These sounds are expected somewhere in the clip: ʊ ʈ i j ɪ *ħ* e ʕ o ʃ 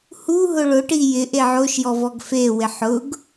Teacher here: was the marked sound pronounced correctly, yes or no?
no